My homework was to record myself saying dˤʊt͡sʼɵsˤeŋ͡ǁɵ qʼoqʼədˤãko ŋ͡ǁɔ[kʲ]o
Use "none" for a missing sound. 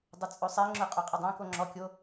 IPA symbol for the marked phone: kʲ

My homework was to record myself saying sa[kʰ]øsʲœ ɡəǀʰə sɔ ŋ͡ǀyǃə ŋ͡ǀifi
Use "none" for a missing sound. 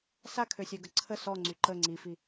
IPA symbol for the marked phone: kʰ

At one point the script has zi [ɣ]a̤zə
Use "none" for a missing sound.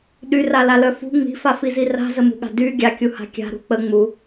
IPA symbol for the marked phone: r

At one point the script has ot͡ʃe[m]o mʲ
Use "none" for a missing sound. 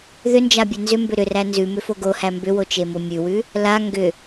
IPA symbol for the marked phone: m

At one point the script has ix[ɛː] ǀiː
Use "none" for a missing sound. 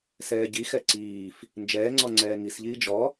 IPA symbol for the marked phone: ɛ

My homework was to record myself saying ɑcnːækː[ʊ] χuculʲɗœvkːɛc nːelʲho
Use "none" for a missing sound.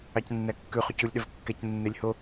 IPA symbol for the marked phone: ʉ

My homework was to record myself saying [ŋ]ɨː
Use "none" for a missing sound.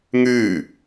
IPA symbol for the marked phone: ŋ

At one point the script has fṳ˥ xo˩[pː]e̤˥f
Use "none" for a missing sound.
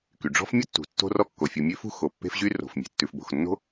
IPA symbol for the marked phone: pː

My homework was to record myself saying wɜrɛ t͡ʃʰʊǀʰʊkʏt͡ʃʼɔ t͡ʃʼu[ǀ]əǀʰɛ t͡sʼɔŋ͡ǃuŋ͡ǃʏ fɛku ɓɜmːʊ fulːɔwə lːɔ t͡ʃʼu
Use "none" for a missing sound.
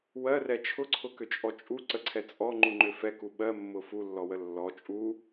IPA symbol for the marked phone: ǀ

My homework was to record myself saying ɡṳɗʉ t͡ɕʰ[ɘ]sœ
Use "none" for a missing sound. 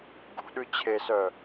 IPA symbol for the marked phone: e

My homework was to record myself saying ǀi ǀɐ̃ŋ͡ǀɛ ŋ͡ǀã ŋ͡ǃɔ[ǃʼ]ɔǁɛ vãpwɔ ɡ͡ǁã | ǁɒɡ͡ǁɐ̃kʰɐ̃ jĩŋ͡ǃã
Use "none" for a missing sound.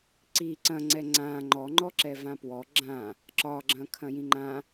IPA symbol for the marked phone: ŋ͡ǃ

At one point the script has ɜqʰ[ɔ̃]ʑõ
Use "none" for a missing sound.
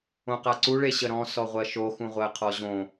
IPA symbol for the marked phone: ɔ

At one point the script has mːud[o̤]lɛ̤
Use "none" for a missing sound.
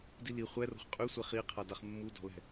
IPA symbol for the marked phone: ɔ̤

